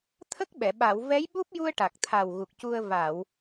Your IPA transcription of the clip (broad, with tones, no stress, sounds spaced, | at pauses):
t̪ʰ ə˦˥ k̚ ɓ ɛ˨˩˨ ɓ a˨˩˨ w v ɛ˧˥ j ɓ u˦˥ p̚ j u˧ ə̯ ʈ a˨˩ k̚ t̪ʰ a˨˩ w ɣ u˨˩ k̚ c u˧ ə̯ v a˨˩˨ w